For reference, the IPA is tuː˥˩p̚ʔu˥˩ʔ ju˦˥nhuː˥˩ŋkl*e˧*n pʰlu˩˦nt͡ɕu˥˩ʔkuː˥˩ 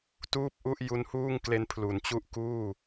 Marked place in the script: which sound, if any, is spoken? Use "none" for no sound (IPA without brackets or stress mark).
e˧